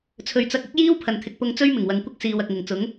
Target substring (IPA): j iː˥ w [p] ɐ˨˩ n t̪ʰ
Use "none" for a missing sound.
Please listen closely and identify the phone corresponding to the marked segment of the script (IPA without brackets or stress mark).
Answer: pʰ